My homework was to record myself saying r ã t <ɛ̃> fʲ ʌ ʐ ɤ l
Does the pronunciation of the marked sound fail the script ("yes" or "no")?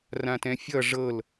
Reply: no